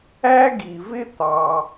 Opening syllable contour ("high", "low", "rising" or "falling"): high